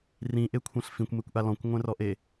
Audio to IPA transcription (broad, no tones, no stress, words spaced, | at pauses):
rĩʔekʷʰɛ̃ɬ fĩkʷmekʷʔa lɔ̃kʷŋʷɛ̃rɔʔe